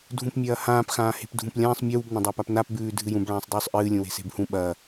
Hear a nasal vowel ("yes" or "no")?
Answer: yes